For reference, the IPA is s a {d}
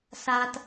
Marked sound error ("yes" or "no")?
yes